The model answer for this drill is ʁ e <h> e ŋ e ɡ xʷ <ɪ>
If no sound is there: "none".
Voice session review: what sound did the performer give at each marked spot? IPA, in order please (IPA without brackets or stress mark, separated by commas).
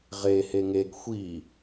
h, i